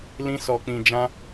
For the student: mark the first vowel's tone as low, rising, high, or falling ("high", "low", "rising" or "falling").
high